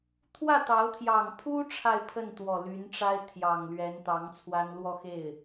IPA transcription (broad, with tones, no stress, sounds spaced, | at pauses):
t̪ʰ w ä˥˩ t̪ ɑ˧˥ ʊ̯ t̪ʰ j ɑ˨˩ ŋ pʰ u˥ ʈ͡ʂʰ a˥˧ ɪ̯ pʰ ə˥˩ n t̪ w ɔ˨˩ l y˧˥ n ʈ͡ʂ a˥ ɪ̯ t̪ʰ j ɑ˨˩ ŋ l ɥ ɛ˧˥ n t̪ ɑ˧˥ ŋ t͡sʰ w a˥ n l w ɔ˥˧ x e˥˩ ɪ̯